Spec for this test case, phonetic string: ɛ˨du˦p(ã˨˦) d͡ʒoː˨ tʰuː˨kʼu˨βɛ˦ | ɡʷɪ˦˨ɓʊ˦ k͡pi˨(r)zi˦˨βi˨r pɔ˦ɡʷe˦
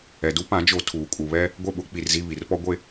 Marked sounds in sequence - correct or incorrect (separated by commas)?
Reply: correct, correct